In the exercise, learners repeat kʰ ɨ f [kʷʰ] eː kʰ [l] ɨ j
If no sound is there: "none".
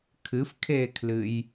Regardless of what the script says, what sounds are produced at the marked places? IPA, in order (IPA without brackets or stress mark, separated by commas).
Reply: kʰ, l